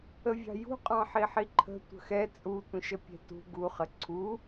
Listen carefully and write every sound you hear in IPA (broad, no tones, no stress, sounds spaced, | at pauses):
ə vʲ ɑ̤ j ṳ qʼ ɑ̃ ħ i ħ i ǃʰ ə̤ tʷ ə̤ x ɛ t͡sʼ u tʷ ĩ ʃ ə pʲ ɛ̤ t ṳ ɡ u χ ə ǀʰ u